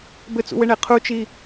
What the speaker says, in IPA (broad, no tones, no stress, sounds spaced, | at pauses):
b ɘ t͡s ṵ w ɘ ɳ e qʰ u t͡ʃ i